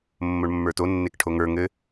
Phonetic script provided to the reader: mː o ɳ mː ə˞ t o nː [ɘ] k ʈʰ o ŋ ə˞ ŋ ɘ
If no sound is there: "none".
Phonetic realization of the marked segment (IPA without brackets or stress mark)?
e